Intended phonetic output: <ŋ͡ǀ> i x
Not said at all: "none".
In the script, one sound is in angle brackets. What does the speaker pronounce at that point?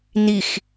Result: n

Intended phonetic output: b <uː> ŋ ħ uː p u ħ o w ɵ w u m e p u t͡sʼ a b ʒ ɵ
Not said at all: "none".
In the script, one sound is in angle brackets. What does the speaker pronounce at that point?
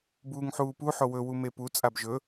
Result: uː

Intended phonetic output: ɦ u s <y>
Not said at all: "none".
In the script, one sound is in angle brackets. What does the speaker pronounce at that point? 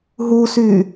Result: y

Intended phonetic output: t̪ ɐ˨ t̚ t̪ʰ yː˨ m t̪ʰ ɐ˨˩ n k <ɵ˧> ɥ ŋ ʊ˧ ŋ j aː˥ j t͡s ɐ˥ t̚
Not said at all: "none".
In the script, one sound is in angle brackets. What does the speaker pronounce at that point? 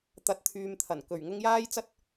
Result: ɵ˨˩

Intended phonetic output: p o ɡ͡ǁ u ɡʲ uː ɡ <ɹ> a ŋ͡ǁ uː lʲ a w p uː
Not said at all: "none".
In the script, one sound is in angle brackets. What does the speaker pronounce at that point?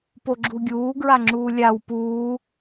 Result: ɹ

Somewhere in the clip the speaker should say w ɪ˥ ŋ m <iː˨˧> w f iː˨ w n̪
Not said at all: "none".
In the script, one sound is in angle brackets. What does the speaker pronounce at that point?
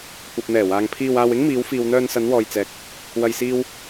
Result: iː˨˧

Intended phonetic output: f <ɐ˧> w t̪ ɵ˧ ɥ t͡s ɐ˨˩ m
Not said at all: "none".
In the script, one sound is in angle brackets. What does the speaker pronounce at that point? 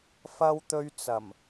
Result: ɐ˧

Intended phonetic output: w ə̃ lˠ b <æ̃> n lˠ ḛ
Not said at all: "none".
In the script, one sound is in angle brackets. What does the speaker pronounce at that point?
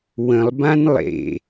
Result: ã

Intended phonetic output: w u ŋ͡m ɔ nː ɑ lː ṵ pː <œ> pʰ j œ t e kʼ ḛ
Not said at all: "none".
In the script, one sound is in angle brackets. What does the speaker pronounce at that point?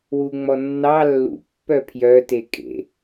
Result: œ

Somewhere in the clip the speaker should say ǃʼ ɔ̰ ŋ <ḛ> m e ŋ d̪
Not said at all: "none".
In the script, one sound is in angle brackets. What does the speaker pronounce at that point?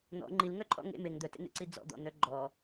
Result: ḛ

